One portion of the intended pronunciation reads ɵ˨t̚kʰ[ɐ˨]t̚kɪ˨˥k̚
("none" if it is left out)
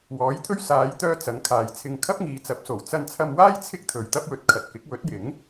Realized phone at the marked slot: ɐ˨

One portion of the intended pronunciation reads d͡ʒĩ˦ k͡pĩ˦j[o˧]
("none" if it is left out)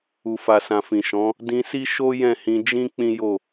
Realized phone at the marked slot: o˦˨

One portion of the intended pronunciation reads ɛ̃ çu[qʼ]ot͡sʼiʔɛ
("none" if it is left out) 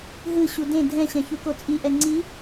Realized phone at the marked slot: k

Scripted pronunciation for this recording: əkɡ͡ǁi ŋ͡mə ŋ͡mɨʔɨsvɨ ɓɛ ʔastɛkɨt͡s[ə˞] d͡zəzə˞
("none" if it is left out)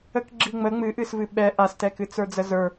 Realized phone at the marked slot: ə˞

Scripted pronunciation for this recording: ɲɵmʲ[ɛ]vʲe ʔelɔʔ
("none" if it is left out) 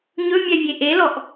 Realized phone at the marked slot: ɛ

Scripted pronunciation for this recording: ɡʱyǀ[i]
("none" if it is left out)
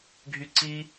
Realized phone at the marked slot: i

